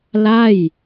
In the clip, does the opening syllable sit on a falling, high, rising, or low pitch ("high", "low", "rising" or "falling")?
falling